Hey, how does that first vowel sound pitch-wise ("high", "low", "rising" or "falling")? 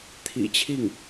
low